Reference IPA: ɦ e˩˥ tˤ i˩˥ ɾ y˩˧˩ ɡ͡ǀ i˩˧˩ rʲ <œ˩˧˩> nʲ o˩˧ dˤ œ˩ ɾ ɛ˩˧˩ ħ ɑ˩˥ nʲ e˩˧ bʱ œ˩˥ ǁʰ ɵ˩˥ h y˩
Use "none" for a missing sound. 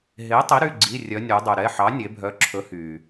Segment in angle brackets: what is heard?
œ˩˧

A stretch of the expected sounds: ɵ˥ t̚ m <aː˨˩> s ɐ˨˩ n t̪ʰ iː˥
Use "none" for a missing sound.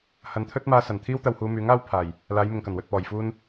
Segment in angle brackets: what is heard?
aː˧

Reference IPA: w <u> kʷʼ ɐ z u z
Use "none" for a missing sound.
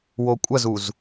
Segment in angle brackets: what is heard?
o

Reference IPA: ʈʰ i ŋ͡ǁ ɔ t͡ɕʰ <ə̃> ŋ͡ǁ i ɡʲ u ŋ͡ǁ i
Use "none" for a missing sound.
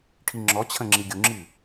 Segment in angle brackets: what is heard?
ə̃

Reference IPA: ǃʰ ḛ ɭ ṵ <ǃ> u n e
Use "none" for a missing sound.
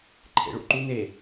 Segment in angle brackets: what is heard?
ǃ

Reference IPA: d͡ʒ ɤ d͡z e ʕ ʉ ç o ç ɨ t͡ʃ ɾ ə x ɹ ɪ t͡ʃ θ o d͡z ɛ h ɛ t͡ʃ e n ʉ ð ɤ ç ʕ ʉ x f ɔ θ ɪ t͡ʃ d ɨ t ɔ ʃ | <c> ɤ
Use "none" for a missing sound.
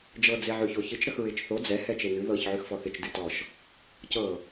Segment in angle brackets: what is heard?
c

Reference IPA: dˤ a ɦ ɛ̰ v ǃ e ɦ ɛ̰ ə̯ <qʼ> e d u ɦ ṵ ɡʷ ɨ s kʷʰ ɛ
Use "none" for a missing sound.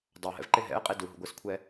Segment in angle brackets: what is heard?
qʼ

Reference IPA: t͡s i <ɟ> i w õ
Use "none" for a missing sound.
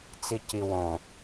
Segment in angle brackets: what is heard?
c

